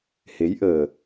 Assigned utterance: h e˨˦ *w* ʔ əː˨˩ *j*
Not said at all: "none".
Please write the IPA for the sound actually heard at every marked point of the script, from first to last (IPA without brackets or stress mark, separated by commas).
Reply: j, none